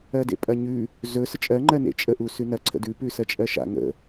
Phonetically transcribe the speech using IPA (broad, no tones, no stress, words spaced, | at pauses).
ɜdḛpʼɐɲʉ | zɵ sət͡ʃʼɜ ŋ͡ǃɜnḛt͡ʃʼə ʔusʉnɐ ǀʰə̰dʉ pʉsɜt͡ʃʼɜʃa̰ ŋə̰